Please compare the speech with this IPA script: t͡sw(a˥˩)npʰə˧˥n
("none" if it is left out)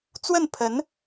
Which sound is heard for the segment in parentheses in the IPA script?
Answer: ə˥˩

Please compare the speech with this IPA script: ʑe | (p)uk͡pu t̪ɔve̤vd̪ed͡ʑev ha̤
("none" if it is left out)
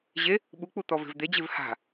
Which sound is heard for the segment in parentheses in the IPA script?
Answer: ɓ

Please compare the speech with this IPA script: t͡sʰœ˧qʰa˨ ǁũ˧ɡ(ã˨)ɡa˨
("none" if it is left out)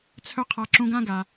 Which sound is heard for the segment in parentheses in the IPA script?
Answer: ã˦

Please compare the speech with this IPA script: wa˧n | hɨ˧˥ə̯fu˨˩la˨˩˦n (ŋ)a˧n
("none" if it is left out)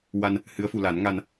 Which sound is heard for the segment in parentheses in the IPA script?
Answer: ŋ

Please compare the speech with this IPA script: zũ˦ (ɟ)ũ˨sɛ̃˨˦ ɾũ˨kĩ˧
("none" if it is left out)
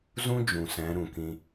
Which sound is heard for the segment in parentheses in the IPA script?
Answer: d͡ʒ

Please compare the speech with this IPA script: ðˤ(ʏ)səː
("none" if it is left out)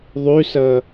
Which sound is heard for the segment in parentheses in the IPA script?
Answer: y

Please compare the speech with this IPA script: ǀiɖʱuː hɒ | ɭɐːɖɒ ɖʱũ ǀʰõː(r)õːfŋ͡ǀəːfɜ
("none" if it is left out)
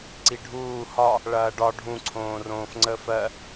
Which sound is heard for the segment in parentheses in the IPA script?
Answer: r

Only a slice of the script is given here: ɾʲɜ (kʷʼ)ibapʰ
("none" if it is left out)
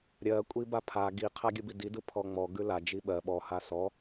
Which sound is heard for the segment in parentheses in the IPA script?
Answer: kʷʼ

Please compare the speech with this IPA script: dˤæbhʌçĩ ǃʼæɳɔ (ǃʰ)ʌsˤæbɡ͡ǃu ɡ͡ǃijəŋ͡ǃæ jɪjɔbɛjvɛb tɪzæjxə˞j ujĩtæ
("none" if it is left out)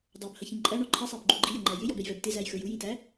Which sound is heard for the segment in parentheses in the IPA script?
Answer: ǃʰ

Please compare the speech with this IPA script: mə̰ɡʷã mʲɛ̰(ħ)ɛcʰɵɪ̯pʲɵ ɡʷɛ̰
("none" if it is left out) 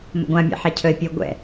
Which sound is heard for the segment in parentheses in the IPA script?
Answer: ħ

